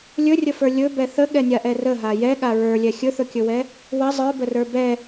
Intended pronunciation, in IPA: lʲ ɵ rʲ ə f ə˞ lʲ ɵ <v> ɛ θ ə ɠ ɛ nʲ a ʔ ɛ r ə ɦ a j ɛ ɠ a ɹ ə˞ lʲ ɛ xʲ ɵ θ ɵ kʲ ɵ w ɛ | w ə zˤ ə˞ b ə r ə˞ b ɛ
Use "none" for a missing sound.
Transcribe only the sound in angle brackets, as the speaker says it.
b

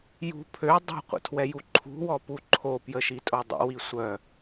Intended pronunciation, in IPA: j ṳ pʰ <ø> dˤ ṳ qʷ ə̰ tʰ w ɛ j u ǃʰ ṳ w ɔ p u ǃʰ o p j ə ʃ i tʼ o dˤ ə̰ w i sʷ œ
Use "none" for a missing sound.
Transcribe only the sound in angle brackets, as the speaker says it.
ø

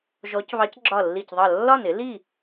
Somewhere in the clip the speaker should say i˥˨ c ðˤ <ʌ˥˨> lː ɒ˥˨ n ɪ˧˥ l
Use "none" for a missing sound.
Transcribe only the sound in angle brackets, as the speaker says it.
ʌ˥˨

